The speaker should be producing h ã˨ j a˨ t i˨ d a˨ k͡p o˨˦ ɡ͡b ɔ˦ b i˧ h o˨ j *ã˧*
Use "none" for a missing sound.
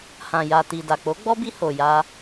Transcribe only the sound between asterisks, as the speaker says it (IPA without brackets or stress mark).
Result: a˧